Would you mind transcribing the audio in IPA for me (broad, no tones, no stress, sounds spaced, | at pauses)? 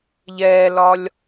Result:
ʎ ɛː l ɒ lʲ